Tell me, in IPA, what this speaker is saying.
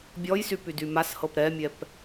bʲ ɔ j s y p y d y m a s h ɤ p ɾ ɛ mʲ ɛ p

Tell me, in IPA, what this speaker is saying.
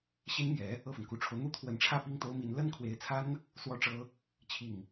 ɕ i˥ n m j ɛ˧˥ | ɤ˥˩ f ə˩ n k u˨˩ ʈ͡ʂʰ o˦ ʊ̯ n̪ u˥ t̪ʰ w ə˧˥ n ʈ͡ʂʰ ä˥˧ p i˥˩ ŋ t̪ o˥ ʊ̯ m i˧˥ n l ə˥ n kʰ w e˧˥ ɪ̯ t͡sʰ a˥ n | s w ɔ˥ ʈ͡ʂ ɤ˥ | t͡ɕʰ i˥˩ ŋ

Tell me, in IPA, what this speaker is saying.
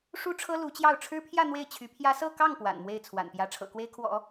ʂ u˥ ʈ͡ʂʰ ɤ˥ l u˧˥ t͡ɕ j ɑ˥˩ ʊ̯ ʈ͡ʂʰ ɻ̩˥ pʰ j ä˥˧ n̪ w e˥˩ ɪ̯ t͡ɕʰ y˧˥ pʰ j ä˥ s ɤ˥˧ k ɑ˥˩ ŋ p w a̰˨˩ n m w e˥˩ ɪ̯ t͡sʰ w a̰˨˩ n p j ä˥ ʈ͡ʂʰ ɤ̰˨˩ k w e˥ ɪ̯ kʰ w ɔ̰˨˩˦

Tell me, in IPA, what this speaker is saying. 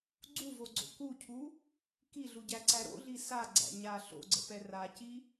ɡ͡ǀ u v o ɡ͡ǀ o̰ k u cʰ u | k i ɮ u ɟ æ ǀ æ ɾ o̰ ɮ i s a ɡ͡ǀ æ̰ ɲ a ɬ o̰ ɡ͡ǀ ə̰ p ɛ r a c i

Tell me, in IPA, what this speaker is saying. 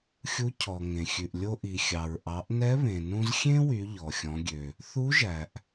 xʲ u˧˥ cʰ ɔ˩ ŋ ẽ˩ xʲ ʉ˩ ʔ lʲ o˧ ʔ i˩ xʲ ɑ˩ ɹ ʔ ɑ˩˧ ʔ n ɛ˧˥ β ẽ˩ n ũ˧ z xʲ ẽ˥ w y˩˧ ʎ ɔ˩ xʲ ɔ̃˩˧ ɡʲ ø˩ | θ u˧˥ ʒ æ˩ ʔ

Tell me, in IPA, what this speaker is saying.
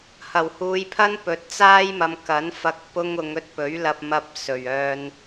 h ɐ˨˩ w h uː˨˧ j pʰ ɐ˥ n p ɵ˨˥ t̚ t͡s aː˥ j m ɐ˨˧ m k ɐ˨˥ n f ɐ˧ k̚ p ʊ˧ ŋ ʊ˨˧ ŋ ɵ˧ t̚ p ɵ˨˥ ɥ l ɐ˧ p̚ m ɐ˧ p̚ s ɵ˨˩ ɥ œː˧ n

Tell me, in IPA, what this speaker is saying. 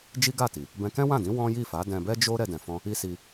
d͡ʒ i˦ ɡ a˦˨ t i˨ | b ɛ̃˧ k ɛ̃˦ w ã˦˨ d ĩ˨˦ w ɔ̃˦ j i˦˨ f a˨˦ d ɛ̃˧ b ɛ˦ d͡ʒ o˦ ɾ ɛ˧ d ɛ̃˨ f ɔ̃˧ | i˦ s i˧

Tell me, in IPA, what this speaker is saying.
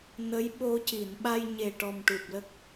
n ə˧˥ j ɓ o˧ c i˨˩˨ n ɓ a˧ j ɲ e˨˩ ʈ ɔ˨˩ m ʈ u˨˩ p̚ l ə˦˥ k̚

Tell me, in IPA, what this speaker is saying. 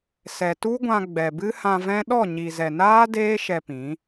s ɛ˨ t u˦ ɡʷ ã˧ ɡ͡b ɛ˨ b ɨ˦ h ã˧ v ɛ̃˦ ɗ ɔ˦˨ ɲ i˨ z ɛ˨ n aː˦ d eː˦ ʃ ɛ˧ p ĩ˨˦

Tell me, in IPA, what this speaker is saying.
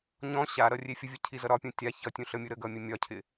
ɲ ɔ̃ ɕ a ɾ ʌ rʲ e fʲ ə vʲ ʌ cʰ i z ʌ ɾ ɒ pʲ ũ tʲ a ç ʌ tʲ ũ ɬ ə mʲ u ɾ ə ɡ ʌ mʲ ə mʲ ɒ cʰ ɪ

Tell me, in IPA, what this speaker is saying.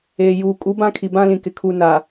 eː˨ j uː˨ kʼ u˨˦ b ã˦ kʰ i˨ b ã˦ l ĩ˨ k ɪ˨ kʰ u˨ n a˨

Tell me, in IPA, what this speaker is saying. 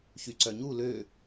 ç y ǀ œ ɲ u l ø

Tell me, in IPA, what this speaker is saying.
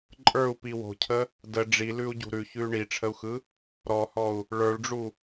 ǃʼ ə˞ u̯ p i w o̤ cʰ ə | d ə ɖ͡ʐ i l ʉ u̯ ɟ ṳ ɾ ʉ ç ʉ y̯ ɳ i ʈ͡ʂʰ ə u̯ x ɯ | ɾ ɔ h ɔ u̯ | ɭ ə˞ ɭ ɖ͡ʐ u

